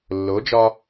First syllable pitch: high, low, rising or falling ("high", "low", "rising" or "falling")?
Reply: rising